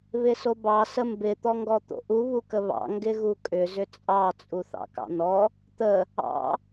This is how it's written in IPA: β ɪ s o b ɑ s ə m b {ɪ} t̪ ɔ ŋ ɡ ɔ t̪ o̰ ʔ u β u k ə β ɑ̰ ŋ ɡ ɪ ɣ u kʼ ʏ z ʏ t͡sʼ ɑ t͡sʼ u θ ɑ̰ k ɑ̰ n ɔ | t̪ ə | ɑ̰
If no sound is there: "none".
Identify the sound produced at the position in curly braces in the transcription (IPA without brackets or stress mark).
ɪ